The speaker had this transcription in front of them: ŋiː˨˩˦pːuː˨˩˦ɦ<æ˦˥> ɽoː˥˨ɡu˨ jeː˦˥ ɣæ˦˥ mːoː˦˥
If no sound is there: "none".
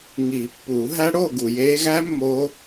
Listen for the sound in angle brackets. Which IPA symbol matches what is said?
æ˦˥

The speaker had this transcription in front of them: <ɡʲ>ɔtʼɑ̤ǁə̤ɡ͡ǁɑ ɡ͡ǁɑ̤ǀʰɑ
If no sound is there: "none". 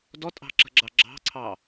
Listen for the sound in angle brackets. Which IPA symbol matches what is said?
d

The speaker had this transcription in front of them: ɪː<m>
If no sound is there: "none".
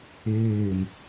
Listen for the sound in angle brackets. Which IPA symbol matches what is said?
m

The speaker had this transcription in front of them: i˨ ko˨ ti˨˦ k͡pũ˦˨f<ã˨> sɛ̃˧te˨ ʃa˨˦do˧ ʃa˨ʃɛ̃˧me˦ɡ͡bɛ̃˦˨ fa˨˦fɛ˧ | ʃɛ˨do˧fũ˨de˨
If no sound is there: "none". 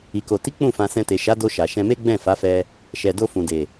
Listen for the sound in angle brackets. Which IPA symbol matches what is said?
ã˧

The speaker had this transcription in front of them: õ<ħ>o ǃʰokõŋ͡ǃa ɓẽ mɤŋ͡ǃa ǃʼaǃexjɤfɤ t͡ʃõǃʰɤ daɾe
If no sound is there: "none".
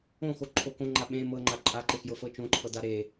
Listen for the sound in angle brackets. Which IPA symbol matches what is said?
x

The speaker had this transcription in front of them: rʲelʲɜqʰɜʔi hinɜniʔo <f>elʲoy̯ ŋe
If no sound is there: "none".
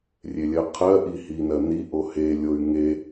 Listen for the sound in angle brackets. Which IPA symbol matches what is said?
h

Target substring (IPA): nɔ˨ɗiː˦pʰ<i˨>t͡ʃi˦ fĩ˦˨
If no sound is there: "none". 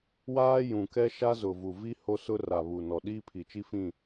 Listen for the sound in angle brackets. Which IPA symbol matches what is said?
i˨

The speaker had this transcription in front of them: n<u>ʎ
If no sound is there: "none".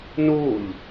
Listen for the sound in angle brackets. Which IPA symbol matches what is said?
u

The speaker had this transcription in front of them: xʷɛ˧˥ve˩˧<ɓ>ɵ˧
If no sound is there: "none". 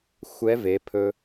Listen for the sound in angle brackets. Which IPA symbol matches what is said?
pʰ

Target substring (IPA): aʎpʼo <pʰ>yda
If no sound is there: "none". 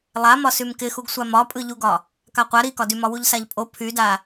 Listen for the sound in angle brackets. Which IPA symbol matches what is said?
pʰ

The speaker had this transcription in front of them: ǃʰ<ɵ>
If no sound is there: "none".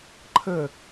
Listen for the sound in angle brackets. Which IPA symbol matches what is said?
ə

